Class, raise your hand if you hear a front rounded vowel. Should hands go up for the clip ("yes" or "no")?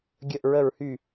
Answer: yes